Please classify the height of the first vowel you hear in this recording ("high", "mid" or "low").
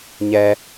mid